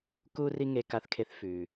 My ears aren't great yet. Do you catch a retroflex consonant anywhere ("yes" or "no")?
no